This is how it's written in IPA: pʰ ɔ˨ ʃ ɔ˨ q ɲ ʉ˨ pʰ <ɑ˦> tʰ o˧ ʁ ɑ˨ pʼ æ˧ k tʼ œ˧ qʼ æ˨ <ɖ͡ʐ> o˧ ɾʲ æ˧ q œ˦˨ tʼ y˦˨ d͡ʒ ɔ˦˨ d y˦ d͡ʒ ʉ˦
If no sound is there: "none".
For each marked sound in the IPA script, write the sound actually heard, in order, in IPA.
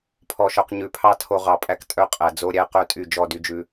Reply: ɑ˦, d͡z

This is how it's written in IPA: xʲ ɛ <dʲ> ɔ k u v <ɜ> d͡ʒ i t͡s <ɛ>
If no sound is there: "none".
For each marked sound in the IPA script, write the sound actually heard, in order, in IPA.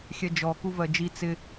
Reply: d͡ʒ, ɜ, ɪ

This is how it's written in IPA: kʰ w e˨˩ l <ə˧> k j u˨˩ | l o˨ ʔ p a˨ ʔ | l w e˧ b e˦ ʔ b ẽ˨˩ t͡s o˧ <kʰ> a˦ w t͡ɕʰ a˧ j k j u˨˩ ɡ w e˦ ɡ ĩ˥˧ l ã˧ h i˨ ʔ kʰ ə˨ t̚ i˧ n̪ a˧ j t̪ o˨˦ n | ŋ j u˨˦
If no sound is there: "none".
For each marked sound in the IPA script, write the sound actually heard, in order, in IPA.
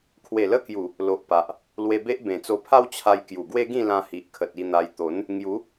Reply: ə˧, pʰ

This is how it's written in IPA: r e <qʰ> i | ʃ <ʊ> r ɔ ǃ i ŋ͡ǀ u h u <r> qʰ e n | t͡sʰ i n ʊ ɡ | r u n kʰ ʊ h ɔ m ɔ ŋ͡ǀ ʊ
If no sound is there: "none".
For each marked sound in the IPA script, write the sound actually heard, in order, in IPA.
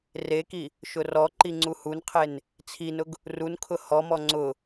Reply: k, ʊ, n

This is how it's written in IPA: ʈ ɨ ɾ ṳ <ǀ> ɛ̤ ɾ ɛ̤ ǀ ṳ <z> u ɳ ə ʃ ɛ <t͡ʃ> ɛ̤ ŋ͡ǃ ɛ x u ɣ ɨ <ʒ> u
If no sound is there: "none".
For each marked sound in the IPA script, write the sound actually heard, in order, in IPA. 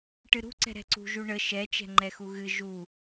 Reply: ǀ, ʒ, t͡ʃ, ʒ

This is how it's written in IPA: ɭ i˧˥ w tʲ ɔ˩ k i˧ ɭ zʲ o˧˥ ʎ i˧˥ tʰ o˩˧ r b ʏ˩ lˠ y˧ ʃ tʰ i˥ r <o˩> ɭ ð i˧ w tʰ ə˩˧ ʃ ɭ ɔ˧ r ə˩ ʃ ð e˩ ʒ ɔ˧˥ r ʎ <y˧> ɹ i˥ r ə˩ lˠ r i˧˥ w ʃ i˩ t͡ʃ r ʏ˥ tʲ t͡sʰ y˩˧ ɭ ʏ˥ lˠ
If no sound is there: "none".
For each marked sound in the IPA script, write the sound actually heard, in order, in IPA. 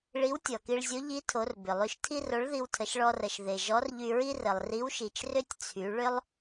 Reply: o˧˥, y˧

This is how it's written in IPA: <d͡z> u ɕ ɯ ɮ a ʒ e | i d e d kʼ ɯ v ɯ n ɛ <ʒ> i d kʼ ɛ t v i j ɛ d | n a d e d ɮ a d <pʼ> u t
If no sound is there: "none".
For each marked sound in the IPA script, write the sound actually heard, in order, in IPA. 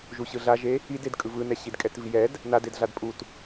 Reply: ʒ, ɕ, pʼ

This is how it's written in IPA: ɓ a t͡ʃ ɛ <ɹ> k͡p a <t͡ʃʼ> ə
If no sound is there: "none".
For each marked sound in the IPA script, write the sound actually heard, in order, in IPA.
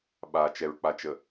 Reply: ɹ, t͡ʃ

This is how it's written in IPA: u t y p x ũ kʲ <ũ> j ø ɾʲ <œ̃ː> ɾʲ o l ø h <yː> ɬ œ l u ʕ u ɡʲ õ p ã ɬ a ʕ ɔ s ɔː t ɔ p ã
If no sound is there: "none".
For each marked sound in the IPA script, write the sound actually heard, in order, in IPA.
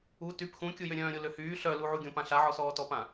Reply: u, œ̃ː, yː

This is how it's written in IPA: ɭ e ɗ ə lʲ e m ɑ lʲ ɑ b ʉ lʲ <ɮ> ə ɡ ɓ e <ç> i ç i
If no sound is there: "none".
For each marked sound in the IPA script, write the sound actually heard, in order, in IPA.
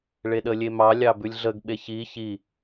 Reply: ɮ, ç

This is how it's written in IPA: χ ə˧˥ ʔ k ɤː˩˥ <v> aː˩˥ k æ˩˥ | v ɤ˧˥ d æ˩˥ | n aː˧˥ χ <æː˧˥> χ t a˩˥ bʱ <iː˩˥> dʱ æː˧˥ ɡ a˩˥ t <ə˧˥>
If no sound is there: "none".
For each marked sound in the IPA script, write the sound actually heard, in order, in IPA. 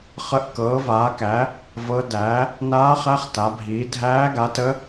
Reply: v, æ˧˥, iː˩˥, ə˧˥

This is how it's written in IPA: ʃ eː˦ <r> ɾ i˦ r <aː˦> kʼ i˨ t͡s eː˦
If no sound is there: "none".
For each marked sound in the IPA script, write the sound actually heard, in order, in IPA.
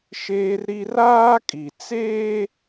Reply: r, aː˦

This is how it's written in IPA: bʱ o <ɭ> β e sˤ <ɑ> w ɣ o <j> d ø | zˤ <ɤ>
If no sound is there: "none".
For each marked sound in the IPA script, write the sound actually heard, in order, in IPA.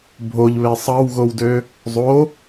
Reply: ʎ, ɑ, w, o

